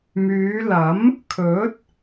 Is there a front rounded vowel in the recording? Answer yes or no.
yes